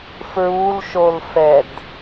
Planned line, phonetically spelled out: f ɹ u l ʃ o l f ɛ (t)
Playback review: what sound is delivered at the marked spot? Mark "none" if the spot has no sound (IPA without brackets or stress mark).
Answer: d